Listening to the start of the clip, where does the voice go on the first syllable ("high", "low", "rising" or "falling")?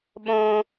high